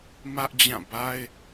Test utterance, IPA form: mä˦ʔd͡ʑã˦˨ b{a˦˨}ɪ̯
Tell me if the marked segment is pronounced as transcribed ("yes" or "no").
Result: no